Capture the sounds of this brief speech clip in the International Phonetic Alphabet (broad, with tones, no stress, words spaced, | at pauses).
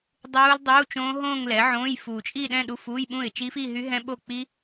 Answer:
dˤuː˦˥ldˤuː˧˥˧t͡ʃõː˦˥ ɦõː˥˧ŋlɛ˩˥ ʕõː˧˥˧j fuː˨˩t͡ʃʼi˥˧ɗɛ̃˥˧ ɗu˧˥˧fuː˧˥˧jɓũ˥˩ɪ̯ t͡ʃi˦˥fi˥˧ ɦy˦˥ɦɛ̃˦˥ɓo˥˩ k͡piː˦˥